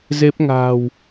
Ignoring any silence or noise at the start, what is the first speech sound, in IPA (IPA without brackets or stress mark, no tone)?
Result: z